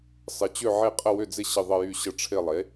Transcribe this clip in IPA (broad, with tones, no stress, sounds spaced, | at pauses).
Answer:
sˤ ɪ˩˥ t͡ɕ ʏ˦˨ ʕ e˦˨ qʼ ə˦˨ w ʏ˦˨ d͡z ɪ˦˨ ɕ ɪ˦˨ ðˤ ə˦˨ j y˦˨ ɕ ə˦˨ ʈ͡ʂʰ ɪ˦˨ lˠ e˩˥